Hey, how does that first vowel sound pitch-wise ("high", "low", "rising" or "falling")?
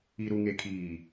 low